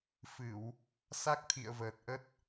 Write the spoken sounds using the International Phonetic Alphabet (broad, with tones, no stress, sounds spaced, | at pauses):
f ɨ˧˩˨ w | s a˦˥ k̚ t̪ʰ ḭ˧˨ ə̯ v əː˨˩ t̚ ʔ ə˦˥ t̚